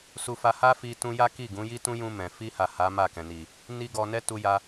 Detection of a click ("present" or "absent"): absent